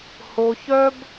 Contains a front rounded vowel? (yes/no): yes